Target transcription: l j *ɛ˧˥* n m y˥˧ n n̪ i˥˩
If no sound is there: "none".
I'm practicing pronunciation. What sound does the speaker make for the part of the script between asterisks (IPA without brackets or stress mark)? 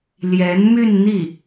ɛ˧˥